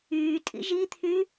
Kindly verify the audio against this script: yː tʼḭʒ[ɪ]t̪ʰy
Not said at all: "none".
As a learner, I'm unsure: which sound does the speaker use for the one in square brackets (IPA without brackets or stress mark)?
i